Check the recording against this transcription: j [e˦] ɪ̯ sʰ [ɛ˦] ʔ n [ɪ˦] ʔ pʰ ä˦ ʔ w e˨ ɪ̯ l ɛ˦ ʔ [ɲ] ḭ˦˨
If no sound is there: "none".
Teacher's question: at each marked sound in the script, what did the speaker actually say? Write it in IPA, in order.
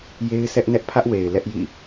e˦, ɛ˦, ɛ˦, j

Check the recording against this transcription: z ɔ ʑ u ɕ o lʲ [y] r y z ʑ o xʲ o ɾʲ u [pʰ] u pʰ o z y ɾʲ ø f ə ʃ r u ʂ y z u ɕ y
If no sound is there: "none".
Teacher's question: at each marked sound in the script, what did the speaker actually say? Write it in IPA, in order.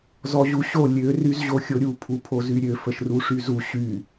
ø, pʰ

